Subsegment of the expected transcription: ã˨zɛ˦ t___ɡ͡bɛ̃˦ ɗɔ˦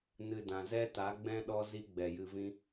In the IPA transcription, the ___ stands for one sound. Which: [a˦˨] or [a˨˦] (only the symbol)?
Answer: a˨˦